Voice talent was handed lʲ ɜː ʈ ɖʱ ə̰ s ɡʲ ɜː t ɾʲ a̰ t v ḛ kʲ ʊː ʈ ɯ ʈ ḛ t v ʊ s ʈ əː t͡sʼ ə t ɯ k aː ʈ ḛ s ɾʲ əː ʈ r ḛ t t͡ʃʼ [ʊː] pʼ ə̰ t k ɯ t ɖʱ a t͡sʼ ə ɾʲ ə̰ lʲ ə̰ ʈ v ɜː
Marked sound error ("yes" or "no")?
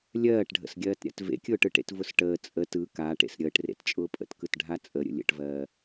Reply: no